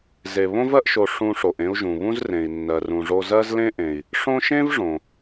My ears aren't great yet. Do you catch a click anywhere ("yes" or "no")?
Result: no